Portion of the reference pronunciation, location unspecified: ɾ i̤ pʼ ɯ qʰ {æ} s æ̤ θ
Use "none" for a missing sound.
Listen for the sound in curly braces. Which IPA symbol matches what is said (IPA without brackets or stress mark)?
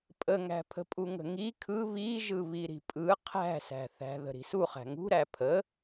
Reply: æ̤